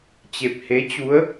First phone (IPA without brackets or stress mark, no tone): t͡ɕ